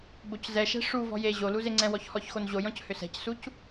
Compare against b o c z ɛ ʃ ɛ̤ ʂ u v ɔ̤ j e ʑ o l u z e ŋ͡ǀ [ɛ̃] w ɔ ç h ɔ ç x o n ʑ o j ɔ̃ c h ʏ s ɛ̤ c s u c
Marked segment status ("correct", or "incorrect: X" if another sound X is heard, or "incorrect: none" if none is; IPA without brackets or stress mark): correct